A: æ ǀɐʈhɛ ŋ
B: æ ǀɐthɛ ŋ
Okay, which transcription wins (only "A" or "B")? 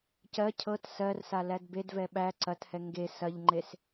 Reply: B